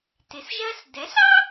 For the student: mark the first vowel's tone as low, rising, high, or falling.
rising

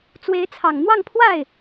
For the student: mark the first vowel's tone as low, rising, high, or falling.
rising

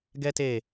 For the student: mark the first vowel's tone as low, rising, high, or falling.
high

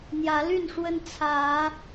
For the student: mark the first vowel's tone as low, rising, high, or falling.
rising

